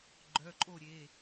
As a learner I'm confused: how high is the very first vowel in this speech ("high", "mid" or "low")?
mid